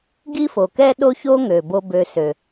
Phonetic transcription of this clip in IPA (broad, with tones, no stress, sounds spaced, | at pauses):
ɡ i˥ f o˩ k ɛ˥ ɗ o˦ ç o˦ ŋ ø˩ b o˨ b ø˨ s ø˩